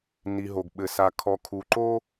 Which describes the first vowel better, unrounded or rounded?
unrounded